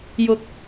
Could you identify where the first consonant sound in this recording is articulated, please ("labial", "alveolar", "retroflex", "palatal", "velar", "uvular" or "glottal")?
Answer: palatal